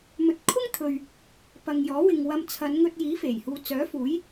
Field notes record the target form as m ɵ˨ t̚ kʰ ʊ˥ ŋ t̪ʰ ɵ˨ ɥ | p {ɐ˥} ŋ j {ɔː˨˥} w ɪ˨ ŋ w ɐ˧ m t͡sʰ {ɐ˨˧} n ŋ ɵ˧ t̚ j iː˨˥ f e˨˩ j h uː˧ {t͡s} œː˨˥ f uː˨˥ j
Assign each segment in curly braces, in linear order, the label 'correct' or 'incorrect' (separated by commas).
incorrect, correct, correct, correct